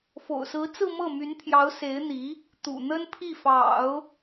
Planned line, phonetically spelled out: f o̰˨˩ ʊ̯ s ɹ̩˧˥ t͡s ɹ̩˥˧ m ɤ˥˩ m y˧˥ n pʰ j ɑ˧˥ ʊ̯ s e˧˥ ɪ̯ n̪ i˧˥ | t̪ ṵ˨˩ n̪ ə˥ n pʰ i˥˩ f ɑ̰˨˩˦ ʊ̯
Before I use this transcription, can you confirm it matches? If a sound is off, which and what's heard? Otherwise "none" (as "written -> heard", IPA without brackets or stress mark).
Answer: none